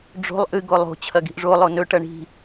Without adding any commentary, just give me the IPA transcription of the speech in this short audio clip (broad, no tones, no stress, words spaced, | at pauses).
ɖ͡ʐo̤lˠ ʔɨ ɡolˠo̤ t͡ɕʰɐɡi̤ʔʐo lˠonɵ ʈɐɳi̤